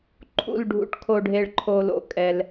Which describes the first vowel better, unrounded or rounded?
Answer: rounded